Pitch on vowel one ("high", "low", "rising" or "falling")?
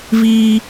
high